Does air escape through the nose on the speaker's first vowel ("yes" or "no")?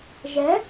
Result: no